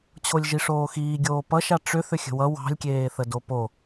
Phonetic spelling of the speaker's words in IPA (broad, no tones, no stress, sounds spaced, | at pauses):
t͡ɕʰ o lʲ ʒ i ʂ oː x iː ɡʲ oː p ʌ ʃ a ʈ͡ʂ ʏ θ ʏ xʲ ə̤ w ʌ w ɑ̤ lʲ kʲ eː θ ə d o p o